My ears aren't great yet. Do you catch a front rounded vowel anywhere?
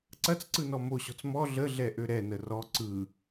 yes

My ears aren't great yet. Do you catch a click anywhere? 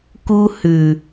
no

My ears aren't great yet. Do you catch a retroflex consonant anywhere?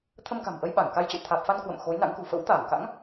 no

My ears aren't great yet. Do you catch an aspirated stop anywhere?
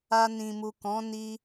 no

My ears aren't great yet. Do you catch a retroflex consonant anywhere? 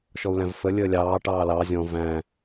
yes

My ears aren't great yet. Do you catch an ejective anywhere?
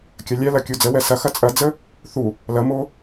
yes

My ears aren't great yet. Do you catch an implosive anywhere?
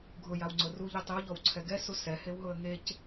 no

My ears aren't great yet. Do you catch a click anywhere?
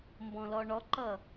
yes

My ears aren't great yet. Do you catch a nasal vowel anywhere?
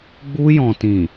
yes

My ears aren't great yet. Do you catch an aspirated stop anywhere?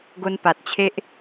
yes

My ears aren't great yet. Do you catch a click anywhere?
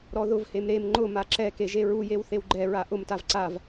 yes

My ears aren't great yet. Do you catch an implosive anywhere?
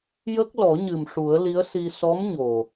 no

